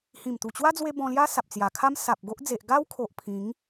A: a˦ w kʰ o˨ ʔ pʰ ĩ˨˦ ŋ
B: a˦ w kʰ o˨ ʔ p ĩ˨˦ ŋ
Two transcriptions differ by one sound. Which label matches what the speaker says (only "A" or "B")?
A